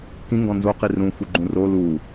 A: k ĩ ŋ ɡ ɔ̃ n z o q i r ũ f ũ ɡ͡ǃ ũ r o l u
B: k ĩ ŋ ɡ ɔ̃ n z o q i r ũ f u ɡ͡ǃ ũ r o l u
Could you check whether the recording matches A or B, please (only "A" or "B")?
B